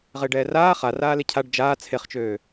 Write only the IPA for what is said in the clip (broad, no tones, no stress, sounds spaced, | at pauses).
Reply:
ʁ ɪː ɖ ɛː r aː χ a r aː l e cʰ a ɖ d͡ʒ aː t͡sʰ e χ t͡ʃ øː